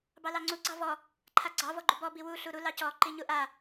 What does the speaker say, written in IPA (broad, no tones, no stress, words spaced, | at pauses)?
bɑlɑŋ͡ǀu ɡ͡ǀɑvɔ | ǃʰaɡ͡ǀɑ vɔɡ͡ǃubɔ biwu ɬuɾu lɑcɔ ǃiɲuʔa